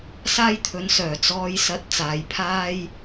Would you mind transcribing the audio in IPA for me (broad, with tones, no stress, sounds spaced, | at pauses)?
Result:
s aː˥ j t̪ʰ ɵ˨˥ n s œː˨˩ t͡s ɔː˨˧ j s ɐ˨˥ t̚ t͡s aː˨ j pʰ aː˥ j